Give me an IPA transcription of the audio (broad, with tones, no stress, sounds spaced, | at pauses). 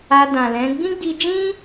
a˧ d ã˨ l ɛ̃˨˦ ɡ͡b ĩ˦ ɡ͡b i˧ d͡ʒ ĩ˦